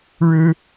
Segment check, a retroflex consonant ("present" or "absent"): present